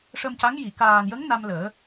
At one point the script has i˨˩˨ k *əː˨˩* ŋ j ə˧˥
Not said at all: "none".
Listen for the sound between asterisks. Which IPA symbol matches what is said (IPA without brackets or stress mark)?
aː˨˩